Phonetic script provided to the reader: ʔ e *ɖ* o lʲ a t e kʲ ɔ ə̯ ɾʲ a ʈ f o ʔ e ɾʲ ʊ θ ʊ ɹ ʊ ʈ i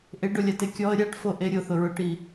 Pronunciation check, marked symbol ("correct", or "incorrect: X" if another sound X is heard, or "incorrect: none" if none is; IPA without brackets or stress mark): correct